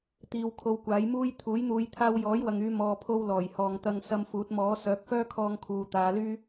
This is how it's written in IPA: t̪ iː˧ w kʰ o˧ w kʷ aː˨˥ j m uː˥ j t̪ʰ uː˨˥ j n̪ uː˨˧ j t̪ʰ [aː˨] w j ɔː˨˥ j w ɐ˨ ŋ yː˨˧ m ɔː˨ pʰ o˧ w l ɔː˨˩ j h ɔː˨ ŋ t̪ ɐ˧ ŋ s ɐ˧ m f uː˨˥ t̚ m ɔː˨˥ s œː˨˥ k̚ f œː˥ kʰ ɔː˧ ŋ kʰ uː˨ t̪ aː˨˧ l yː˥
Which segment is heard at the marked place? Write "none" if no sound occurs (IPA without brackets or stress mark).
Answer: aː˧